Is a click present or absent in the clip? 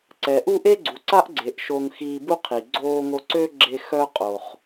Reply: present